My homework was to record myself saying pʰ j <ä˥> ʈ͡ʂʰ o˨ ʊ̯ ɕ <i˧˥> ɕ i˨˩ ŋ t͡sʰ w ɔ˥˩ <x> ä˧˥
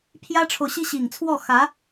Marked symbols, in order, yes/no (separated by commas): yes, no, yes